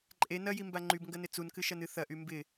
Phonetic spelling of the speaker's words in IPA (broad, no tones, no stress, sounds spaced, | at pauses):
ǃʼ e n ɐ j i m b a ŋ͡ǃ y b ŋ ɡ ɐ n ɪ t͡s u n k ɨ ʃ ɐ n ɨ θ ɐ ʔ y m b ɪ